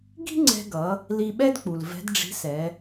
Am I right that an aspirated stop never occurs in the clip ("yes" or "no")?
yes